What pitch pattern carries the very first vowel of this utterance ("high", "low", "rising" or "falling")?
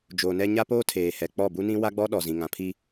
low